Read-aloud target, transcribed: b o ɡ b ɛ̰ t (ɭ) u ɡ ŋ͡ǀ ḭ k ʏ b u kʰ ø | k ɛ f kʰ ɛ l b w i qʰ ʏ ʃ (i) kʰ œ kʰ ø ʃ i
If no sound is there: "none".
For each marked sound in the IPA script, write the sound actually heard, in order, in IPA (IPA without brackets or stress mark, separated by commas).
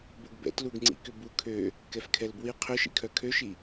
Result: l, ḭ